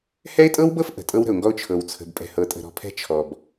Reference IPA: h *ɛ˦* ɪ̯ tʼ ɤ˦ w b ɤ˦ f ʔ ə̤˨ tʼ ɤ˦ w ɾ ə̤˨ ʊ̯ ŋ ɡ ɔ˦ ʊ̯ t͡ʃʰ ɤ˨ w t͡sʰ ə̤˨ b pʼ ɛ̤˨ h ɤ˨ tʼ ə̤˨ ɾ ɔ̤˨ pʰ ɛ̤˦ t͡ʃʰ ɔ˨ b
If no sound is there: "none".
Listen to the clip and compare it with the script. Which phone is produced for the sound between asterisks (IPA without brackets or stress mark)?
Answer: ɛ˦